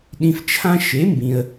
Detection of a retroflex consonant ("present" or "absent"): absent